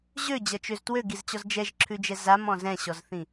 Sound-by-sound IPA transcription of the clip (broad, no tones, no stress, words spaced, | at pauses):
ʑød͡ʑʌt͡ʃøz twøɡizt͡ɕɔz d͡ʒɛʒǁʰʉd͡ʒɛ zamɔ̃ zɛ̃ɕɔzθĩ